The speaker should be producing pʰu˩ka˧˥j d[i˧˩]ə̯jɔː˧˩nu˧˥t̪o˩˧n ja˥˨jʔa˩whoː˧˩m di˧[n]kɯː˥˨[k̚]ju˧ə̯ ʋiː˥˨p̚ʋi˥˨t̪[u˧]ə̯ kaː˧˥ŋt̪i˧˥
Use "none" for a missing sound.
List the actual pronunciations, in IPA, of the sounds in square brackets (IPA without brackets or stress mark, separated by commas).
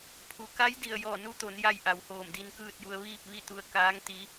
i˧˩, n, t̚, u˧